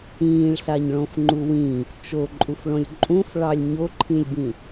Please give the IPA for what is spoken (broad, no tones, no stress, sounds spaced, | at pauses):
ĩː ɭ ɬ a ɲ ɭ õ f ŋ͡ǃ u w ĩ | t͡ʃ o ǃʼ u f ɭ õ lʲ ǃʼ ũ f ɭ ɑ lʲ ɲ o ǃʰ ĩ lʲ b ĩ